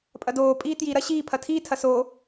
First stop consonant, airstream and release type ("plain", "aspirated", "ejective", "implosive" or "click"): ejective